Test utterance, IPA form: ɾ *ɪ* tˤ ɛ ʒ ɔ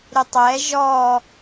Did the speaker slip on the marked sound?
no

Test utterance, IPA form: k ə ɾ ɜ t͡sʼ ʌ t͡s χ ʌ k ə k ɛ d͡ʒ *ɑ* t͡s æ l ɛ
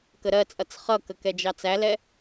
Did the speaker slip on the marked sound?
no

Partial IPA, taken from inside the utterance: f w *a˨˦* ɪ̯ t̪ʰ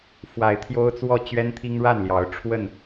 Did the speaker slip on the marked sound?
no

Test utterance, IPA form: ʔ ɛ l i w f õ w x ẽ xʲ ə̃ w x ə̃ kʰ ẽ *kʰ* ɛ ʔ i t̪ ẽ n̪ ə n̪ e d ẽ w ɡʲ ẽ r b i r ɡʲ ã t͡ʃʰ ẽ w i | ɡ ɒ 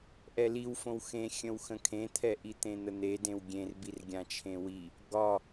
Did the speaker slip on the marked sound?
yes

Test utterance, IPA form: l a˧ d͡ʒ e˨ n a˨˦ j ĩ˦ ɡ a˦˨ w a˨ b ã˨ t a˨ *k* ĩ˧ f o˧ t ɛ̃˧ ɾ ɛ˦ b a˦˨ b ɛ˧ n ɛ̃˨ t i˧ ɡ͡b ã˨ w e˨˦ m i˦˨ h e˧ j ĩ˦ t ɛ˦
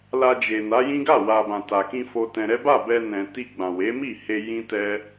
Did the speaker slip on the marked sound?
no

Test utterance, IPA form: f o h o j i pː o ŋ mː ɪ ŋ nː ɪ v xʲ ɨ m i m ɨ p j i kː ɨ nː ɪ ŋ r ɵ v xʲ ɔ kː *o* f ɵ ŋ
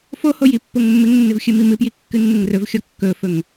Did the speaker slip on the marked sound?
yes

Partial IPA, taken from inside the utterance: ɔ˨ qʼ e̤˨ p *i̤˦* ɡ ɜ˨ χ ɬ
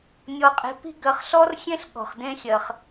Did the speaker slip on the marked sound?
no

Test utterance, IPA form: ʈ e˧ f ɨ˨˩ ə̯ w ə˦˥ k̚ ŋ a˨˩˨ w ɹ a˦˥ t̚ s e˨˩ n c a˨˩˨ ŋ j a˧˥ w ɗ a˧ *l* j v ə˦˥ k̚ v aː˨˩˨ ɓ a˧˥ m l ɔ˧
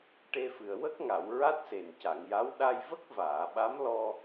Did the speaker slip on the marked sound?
yes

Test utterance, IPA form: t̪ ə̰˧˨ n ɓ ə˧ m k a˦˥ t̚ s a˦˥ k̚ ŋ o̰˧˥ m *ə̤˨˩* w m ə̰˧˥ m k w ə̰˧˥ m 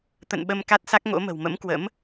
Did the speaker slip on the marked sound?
no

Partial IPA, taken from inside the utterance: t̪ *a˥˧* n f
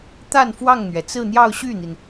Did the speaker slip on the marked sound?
no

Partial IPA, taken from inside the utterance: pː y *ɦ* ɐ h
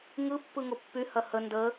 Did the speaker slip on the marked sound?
yes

